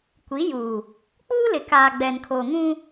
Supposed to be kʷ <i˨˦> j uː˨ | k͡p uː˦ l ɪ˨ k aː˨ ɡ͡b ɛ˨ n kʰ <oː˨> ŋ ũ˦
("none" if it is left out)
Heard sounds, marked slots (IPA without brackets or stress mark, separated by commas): i˨˦, oː˨